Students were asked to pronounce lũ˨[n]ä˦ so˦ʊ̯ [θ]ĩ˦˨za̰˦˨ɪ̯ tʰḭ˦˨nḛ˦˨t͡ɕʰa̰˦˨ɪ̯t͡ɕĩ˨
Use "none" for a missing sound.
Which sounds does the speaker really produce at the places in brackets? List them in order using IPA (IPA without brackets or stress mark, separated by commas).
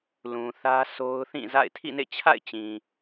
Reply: θ, θ